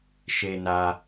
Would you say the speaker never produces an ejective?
yes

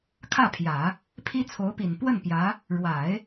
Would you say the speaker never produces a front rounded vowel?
yes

